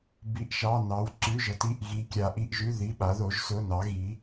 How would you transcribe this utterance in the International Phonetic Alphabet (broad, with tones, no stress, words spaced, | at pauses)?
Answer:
bi˩˧˩ʔʃɑ˩˧˩nɑ˩˧w ǀʉ˩˧˩ʒɤ˩˧t i˩˧˩ʔɣi˩˧kʲa˩˧ʔ i˩˧˩ʔʒʉ˩˧˩ ði˩˧˩ɓa˩˧ðo˩˧ʒ sʊ˩˧˩nɑ˩˧ ɣi˩˧